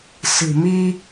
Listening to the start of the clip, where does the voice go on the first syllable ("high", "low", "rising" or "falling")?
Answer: low